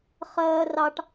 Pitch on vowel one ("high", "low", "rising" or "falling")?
high